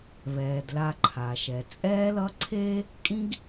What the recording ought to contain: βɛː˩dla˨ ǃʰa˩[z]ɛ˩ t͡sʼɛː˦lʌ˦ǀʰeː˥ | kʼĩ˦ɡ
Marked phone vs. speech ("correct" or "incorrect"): incorrect